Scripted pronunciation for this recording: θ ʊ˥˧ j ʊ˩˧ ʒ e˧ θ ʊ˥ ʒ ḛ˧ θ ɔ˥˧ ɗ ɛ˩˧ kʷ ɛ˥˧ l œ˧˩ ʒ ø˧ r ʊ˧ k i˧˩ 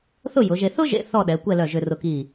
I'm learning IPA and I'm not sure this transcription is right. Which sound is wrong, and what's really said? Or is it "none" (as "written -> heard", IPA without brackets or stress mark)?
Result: none